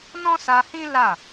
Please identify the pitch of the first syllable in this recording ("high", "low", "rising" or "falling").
high